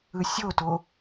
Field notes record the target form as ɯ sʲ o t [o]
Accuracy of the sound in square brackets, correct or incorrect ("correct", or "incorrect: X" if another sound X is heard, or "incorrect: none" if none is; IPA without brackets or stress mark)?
correct